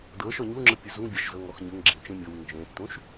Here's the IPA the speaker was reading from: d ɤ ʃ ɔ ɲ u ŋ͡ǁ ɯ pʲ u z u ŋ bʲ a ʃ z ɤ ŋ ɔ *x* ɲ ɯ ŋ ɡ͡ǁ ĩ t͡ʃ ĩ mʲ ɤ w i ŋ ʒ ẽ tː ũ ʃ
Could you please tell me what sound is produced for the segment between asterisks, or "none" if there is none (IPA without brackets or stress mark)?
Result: x